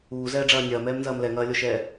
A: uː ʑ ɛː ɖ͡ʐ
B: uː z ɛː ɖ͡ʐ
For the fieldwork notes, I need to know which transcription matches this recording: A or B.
B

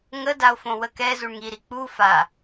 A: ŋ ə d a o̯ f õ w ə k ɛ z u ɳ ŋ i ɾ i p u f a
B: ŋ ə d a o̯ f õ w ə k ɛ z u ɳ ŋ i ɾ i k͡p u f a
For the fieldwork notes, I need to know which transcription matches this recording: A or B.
B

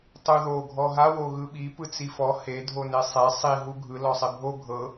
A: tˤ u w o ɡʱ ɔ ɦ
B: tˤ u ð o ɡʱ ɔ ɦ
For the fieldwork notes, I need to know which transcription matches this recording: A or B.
B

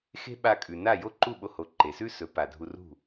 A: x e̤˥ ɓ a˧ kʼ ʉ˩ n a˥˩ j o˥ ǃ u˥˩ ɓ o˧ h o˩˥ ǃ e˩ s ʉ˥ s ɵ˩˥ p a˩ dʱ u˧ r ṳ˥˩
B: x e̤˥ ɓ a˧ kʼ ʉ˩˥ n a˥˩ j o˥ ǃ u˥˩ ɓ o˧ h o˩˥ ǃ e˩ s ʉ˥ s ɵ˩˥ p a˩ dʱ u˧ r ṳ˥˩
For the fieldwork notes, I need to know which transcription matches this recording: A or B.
A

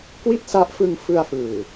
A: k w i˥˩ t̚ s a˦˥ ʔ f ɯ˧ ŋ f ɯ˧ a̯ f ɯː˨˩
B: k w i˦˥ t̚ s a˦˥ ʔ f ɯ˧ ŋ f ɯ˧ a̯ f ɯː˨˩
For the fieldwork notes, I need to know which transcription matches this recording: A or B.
A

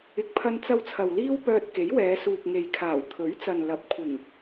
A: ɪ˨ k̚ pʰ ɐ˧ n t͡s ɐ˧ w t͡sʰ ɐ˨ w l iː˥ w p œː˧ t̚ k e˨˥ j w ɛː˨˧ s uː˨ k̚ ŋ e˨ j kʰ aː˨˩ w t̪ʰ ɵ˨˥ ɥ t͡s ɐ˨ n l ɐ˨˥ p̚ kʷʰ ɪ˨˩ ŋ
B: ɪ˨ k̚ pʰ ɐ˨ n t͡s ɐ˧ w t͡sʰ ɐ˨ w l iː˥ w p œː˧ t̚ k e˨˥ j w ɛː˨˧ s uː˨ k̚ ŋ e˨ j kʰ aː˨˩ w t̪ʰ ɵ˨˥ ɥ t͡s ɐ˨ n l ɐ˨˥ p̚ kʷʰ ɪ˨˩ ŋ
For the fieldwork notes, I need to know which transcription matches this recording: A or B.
A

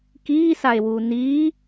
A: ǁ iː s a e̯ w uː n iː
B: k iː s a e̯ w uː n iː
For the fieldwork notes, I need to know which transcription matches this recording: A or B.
B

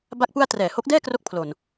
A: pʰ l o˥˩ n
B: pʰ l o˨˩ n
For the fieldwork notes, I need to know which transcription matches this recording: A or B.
B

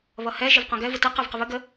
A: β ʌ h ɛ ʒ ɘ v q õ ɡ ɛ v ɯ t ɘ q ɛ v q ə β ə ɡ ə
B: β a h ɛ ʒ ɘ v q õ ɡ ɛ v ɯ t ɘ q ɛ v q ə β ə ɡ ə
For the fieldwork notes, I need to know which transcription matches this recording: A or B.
A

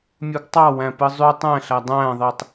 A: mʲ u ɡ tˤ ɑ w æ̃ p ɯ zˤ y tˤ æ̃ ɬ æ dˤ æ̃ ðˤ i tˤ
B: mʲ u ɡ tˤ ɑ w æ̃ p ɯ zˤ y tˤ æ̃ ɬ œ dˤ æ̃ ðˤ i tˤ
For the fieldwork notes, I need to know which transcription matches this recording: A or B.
A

